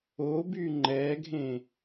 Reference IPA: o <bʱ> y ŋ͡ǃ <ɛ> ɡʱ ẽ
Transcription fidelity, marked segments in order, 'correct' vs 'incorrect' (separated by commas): incorrect, correct